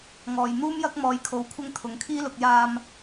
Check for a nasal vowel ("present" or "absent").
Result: absent